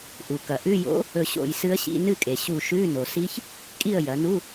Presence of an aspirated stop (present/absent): absent